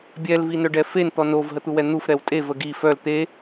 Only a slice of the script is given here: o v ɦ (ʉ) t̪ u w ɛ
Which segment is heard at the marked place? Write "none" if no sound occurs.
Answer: ə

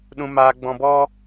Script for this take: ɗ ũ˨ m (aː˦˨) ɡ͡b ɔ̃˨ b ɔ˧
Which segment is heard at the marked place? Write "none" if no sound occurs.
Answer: aː˨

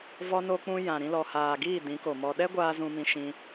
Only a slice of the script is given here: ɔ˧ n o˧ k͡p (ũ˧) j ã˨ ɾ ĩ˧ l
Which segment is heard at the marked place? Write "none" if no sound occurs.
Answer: ũ˧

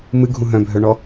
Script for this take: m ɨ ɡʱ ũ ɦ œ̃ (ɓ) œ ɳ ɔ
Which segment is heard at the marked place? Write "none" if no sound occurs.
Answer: bʱ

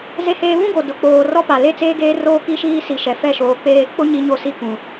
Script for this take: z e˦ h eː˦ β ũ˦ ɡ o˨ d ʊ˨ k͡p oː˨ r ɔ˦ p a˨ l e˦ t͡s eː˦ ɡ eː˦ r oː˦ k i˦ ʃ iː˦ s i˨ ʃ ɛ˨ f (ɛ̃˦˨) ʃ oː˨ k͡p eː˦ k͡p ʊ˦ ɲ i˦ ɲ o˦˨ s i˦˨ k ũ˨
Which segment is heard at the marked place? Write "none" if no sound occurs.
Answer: ɛ˦˨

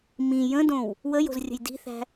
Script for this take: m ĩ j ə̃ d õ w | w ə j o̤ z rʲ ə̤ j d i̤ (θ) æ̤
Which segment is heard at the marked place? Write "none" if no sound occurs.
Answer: θ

